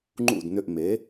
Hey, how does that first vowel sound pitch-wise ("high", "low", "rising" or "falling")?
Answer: falling